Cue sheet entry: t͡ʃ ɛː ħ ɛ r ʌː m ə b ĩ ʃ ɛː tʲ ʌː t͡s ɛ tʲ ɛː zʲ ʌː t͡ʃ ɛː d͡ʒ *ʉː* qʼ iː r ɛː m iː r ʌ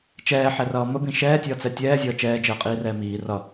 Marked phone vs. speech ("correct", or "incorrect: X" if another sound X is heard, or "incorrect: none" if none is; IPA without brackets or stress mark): incorrect: əː